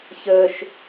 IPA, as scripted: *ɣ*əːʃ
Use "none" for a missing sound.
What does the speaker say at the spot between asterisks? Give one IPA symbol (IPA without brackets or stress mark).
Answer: ç